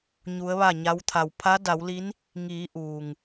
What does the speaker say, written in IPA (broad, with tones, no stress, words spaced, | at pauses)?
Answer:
ɲu˧˥ə̯ʋa˥˨ɲa˧˥w t̪ʰa˩wpʰa˧˥da˩˧wli˧˥n | ŋiː˩˧ ʔuː˩ŋ